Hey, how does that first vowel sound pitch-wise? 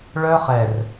high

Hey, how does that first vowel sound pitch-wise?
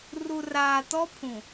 low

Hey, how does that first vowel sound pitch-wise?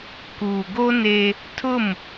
low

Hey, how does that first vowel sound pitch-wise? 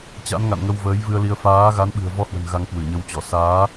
rising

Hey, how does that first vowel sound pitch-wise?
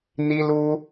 high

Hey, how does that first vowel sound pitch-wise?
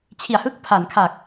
low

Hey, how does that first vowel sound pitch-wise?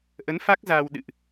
rising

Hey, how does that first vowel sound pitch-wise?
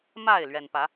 falling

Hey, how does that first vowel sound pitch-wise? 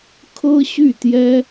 high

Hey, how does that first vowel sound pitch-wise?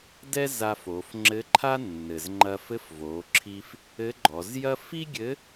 high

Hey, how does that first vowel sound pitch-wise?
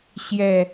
low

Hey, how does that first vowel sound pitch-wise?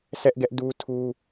high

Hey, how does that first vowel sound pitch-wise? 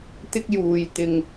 high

